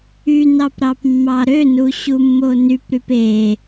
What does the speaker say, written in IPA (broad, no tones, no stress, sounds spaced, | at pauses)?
y n ɑ p ɾ ɑ p mː ɑ ɾ ø n u ɕ u mː o n y p ɾ y p e